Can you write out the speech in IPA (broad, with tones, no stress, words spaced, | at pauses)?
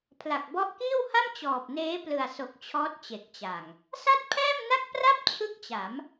pʰla˨˩k̚bɔ˦˥ʔkiː˥˩wha˥˩m t͡ɕɔː˨˩p̚neː˦˥plɯ˨˩a̯so˨˩k̚ t͡ɕʰɔː˦˥t̚t͡ɕe˨˩k̚t͡ɕa˨˩ŋ | sa˥˩t̚pʰɛː˥˩mna˥˩k̚pra˥˩p̚ t͡ɕʰɯ˥˩k̚t͡ɕa˩˦m